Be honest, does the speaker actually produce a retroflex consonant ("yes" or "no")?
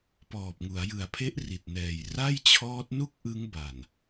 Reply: no